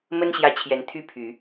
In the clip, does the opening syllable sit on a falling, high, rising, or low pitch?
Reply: high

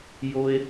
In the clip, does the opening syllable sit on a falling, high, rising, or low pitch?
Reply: high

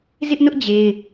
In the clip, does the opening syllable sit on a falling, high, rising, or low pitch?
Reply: high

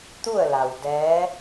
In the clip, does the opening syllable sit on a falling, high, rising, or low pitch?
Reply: falling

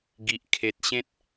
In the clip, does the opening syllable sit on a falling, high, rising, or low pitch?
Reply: high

